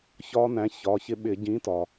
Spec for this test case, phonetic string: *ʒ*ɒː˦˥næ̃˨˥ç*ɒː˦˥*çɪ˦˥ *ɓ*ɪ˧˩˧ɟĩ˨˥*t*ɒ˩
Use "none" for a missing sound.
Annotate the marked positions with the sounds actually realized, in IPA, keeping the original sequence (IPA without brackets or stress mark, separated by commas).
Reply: ç, ɒː˩˧˩, ɓ, t